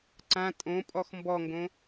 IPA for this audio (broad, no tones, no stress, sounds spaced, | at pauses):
ǀ ã tʼ õ pʼ ɔ x m b ɔ ŋ ɡ õ